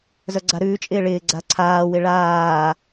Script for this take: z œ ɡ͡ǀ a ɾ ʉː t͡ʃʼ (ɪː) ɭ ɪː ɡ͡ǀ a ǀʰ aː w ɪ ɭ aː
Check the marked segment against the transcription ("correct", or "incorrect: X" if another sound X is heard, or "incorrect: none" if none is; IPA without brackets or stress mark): correct